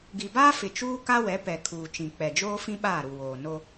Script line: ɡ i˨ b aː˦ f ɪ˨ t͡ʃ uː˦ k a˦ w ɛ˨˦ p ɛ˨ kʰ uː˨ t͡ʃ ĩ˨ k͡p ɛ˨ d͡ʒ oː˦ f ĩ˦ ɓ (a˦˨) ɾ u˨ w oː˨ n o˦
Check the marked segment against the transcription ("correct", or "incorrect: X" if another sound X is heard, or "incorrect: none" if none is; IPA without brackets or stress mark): incorrect: aː˦˨